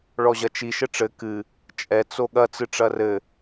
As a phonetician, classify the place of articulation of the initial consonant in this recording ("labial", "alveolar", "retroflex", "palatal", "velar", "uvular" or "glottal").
retroflex